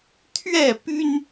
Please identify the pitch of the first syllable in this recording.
falling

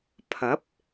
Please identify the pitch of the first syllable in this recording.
rising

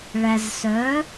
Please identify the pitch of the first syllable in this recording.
low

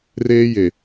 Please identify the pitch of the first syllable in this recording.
high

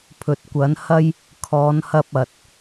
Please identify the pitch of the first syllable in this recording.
low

